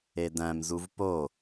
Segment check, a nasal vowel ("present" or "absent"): present